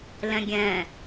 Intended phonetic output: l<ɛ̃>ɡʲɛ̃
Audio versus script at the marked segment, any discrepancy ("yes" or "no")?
no